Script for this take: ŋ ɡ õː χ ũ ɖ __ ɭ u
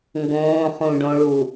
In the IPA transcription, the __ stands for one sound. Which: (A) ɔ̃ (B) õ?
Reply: B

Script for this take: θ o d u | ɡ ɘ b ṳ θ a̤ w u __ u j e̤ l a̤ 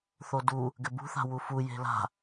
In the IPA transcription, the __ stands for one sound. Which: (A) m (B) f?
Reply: B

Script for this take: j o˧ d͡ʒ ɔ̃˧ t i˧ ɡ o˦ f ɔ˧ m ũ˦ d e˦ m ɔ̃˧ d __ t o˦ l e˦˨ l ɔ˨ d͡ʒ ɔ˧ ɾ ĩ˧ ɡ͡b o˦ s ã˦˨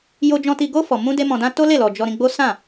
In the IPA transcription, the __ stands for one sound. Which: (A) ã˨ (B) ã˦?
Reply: B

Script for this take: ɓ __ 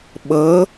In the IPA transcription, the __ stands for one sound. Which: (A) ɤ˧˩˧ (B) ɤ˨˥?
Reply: B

